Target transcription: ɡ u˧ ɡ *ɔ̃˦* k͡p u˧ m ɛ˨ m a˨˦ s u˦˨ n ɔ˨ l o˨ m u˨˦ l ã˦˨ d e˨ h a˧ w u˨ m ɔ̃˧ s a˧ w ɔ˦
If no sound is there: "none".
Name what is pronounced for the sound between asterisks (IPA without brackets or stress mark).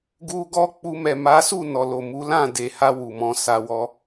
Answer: ɔ˦